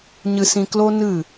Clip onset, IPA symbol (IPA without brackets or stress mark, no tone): ɲ